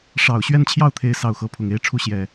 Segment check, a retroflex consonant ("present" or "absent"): present